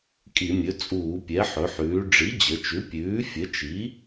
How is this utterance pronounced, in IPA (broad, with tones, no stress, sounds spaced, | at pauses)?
kʼ i˧˩˧ mʲ ɵ˩˥ t͡sʼ uː˧˩˧ pʲ ɛ˩˥ ħ ɵ˩˧ ħ ʉː˩˧ ɖ͡ʐ i˩˥ d͡ʑ ə˩˧ t͡ʃ ʉ˩˥ pʲ ʉː˩˥ fʲ ə˩˥ t͡ʃ i˩˥